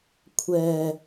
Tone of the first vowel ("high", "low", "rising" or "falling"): low